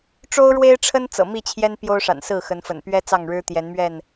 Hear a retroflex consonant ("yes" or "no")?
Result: yes